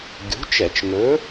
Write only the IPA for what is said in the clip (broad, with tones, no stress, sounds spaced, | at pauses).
ɡʲ ṳ˨˥ t͡ʃ ɛ˧˩˧ t͡ʃ ŋ ɵ˨˥